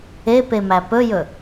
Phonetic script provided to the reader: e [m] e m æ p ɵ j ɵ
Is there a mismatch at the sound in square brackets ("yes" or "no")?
yes